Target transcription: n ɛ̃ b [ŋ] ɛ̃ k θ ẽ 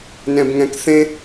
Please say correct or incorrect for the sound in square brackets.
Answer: correct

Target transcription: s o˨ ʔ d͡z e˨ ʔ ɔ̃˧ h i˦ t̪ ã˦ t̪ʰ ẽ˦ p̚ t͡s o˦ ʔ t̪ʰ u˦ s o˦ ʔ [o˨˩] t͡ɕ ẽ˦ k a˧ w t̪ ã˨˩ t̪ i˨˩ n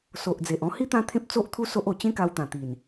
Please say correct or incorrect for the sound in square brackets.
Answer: correct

